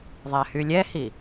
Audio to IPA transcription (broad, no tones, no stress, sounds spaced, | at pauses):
ðˤ æ h y lʲ ɛ h i